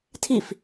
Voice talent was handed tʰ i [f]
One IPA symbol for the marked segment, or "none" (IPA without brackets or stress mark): f